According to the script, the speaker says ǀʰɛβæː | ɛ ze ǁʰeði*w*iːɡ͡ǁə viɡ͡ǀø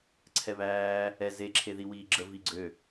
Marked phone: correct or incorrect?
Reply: correct